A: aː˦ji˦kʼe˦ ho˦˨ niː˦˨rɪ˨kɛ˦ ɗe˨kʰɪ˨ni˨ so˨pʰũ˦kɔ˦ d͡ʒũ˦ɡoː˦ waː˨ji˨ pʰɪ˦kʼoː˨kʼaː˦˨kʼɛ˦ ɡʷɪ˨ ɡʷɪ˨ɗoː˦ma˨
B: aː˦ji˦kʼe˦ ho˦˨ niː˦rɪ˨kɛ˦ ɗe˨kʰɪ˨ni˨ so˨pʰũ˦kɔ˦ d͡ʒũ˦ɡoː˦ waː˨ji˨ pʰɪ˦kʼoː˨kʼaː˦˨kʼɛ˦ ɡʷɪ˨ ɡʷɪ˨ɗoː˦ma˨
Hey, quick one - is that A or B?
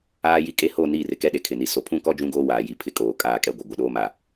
A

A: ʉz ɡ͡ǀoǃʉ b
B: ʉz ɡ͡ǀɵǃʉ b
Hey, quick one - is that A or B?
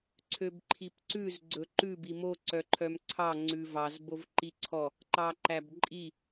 B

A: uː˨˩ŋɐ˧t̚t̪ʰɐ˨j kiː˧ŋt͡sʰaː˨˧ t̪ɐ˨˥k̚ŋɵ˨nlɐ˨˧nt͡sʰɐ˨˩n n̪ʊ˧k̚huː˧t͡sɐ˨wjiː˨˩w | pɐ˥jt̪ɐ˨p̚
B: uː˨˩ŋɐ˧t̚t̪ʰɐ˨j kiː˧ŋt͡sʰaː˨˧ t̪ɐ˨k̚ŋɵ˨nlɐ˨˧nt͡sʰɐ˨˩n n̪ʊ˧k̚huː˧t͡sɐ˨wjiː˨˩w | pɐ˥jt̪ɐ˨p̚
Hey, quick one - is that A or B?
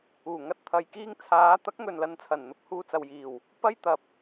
A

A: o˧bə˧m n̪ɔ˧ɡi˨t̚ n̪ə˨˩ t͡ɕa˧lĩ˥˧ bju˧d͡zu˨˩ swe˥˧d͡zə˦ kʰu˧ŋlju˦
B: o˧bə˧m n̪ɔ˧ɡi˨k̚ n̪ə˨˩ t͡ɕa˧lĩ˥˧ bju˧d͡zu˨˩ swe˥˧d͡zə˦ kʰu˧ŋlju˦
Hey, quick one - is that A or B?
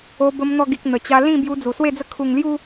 B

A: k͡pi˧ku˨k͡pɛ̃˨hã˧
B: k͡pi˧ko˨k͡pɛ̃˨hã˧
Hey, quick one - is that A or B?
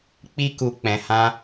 A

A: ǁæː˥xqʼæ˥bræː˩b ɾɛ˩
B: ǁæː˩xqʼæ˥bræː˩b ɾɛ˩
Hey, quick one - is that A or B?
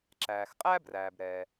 B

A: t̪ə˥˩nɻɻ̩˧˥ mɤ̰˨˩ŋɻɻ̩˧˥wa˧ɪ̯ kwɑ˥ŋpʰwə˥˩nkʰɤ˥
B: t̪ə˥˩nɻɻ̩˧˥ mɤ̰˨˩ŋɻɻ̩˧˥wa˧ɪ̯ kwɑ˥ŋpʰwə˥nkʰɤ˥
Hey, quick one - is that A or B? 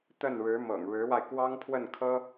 A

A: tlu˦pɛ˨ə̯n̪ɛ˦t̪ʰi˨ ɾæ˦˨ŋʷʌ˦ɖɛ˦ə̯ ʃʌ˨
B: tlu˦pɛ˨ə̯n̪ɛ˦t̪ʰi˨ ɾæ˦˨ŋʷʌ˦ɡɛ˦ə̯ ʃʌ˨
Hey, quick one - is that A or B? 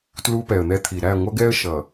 B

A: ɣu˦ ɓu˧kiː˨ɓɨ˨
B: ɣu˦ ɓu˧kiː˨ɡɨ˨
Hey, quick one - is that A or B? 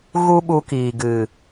B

